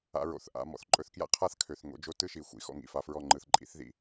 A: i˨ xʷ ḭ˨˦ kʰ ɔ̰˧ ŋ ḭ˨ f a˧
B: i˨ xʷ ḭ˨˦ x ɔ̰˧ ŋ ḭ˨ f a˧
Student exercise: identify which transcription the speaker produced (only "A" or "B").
B